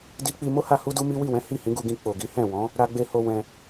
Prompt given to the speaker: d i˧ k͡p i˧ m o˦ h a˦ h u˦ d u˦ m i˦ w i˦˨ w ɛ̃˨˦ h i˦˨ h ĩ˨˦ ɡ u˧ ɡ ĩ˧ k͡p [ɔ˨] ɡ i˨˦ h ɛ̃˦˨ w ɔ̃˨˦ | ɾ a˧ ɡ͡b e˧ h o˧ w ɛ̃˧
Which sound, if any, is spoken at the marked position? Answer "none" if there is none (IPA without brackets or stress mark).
o˨